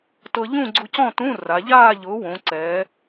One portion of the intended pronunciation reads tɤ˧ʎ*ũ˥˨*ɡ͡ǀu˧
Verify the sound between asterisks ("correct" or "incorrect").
correct